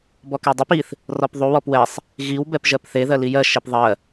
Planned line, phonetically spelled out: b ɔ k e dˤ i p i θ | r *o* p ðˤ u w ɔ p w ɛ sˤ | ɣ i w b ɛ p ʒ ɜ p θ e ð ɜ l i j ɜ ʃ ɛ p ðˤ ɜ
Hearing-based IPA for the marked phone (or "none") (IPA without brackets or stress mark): ɔ